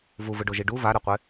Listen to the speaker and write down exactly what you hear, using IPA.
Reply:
v u v ɯ ɖ o ʒ i ɖ u v a ɾ ɛ qʷ e

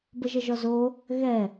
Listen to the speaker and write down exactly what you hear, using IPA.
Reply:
b ə ʒ ə ʒ ɔ z o | ɣ ɛ

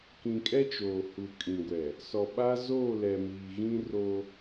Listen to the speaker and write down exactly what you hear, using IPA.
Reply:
k ĩ˨ kʼ ɛ˦ t͡ʃ oː˨ h u˨ kʼ ĩ˨ ɡʷ ɛ˨ | s ɔ˨ ɓ a˦ z oː˦˨ l ɛ˨ m iː˨ ɣ ĩ˦ r o˦

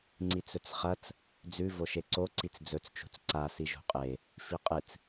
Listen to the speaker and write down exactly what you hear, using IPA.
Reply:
ŋ͡ǀ i t͡s ɵ t͡s χ ɐ t͡s | d͡z ʉ v o ʃ e ǀ o ǀ i t͡s d͡z ɵ t͡s t͡ʃ ṳ t͡s ǀ a s i ʒ ṳ qʼ e | f i qʼ ɨ t͡s

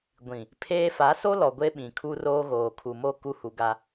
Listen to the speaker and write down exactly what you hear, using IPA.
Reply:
ɡʷ ĩ˨ | pʰ eː˦ f a˨˦ s o˦ l ɔ˨ ɡʷ e˦ ɓ ĩ˨ kʰ u˦ r oː˦ ɣ oː˨ kʰ u˨ m o˦˨ k u˦ h u˨ ɡ a˦

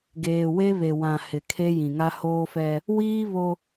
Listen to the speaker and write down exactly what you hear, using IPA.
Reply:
ɡ eː˨ w e˦ β e˨ w ã˨ h ɪ˨ kʰ e˦ j ĩ˨ ŋ a˦ h oː˦ f ɛ˦ | w iː˦ β o˦

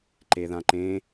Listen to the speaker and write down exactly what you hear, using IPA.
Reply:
ǃ e ð ã ǃ ẽ

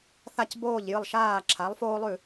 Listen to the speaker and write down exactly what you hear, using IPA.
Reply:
θ a˥˩ c b oː˥˩ ʎ j ɨ˥˩ lˠ ʃ aː˥˩ ǁʰ a˩˥ lˠ f oː˥ lˠ ʉ˥˩

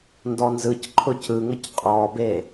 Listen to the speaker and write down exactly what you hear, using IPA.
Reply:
n d ɔ n z ɯ c ǃʰ ʊ c ɯ ŋ ə c qʼ ɔ b e

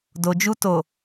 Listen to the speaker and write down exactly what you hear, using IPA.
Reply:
d o˨ d͡ʒ u˧ t o˨

